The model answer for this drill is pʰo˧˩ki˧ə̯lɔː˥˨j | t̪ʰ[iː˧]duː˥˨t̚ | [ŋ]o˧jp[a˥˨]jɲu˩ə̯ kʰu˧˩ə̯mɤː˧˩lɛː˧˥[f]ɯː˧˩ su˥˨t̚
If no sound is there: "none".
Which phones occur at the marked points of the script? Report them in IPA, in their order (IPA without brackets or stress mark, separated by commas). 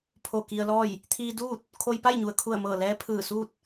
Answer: iː˧, kʰ, a˥˨, pʰ